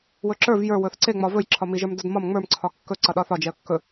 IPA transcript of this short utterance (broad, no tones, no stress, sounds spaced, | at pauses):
w ɵ ǁ ə˞ v j ə˞ w ɵ θ ǀ e ŋ͡m ɒ v ɵ j ǁʰ ɒ m i ʒ ə˞ m d ɒ d m ɒ m ŋ͡m ə˞ m ǀʰ ɒ kː ɵ ǀ ʌ ɗ ɒ θ ɒ d͡ʒ ɛ ə̯ kː ɵ